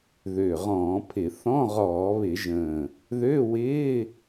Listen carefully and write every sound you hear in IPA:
ðø˨˩ʁɔ̃ː˧˩˧pʰɪ˧˩˧ θɔ̃˧˥˧ʁɔː˧˩˧βɪ˧˩˧ʒə̃ː˨˩ | ðø˧˥˧ wɪː˧˥˧

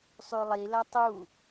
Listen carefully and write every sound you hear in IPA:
sˤʉlˠi lɐtˤu

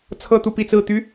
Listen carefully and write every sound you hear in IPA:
t͡sʰɤ˥˧t̪u˥˧pi˥˧t͡sɹ̩˥˩ t̪y˥

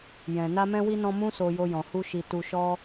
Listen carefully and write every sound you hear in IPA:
jɛ̃˨ na˧mɛ̃˧wi˧nɔ̃˧ mũ˦so˧ jo˧jɔ̃˨ hu˧ ʃi˧ tu˧ʃɔ˦

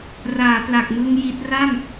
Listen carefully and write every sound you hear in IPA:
raː˩˦pla˨˩k̚mɯ˧ŋ ji˦˥t̚ ra˥˩m

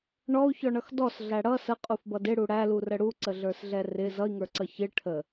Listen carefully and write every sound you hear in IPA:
ɳɔu̯çɔɳʌx dɔsɮæ ɽʌ səqʼufbʌd ɪɽu ɽælurə ɽuǀəɮə˞sɮɛ rɪ zʌi̯ŋə˞ǀʌ çɪ ʈʰə

